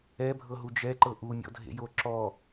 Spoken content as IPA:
ɛ bʱ ɤ ɦ u d͡ʒ ɛ ǃ ɤ ʔ u mʲ ɔ̰ dʱ ḛ j o ǁ ɔ

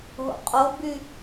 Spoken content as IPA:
ɦ o̰ qʼ o b y

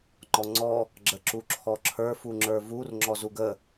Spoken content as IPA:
ŋ͡ǃ ɔ ŋ͡ǀ ɔ | ɡ͡ǁ ə ǁ u ǁʰ ɔ ǁʰ ə˞ f u ŋ͡ǁ ə˞ v u r ŋ͡ǁ ɔ z u ɡ ə

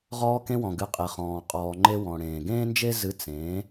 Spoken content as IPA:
ʁ ɔː˧ k ẽ˧ w ɔ̃˩ ɡ ɨ˩˥ qʼ e˩ χ ɔ̃ː˩ qʼ ɔː˩ ŋ͡ǃ e˧ w ɔ̃˩ ɽ ẽː˩ ɡ ẽː˥ n d͡ʒ e˥ z ɨ˧ t͡s ẽː˩˥

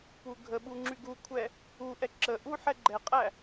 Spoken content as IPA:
p u ɡʱ ə ɓ u ŋ͡ǁ y ɡ u kʷʰ ɛ | u ʔ ɛ ǁ ə ʔ u ħ ɛ ɡ͡ǃ ɛ qʼ æ

